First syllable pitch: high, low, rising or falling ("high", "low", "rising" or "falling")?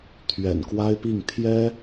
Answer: low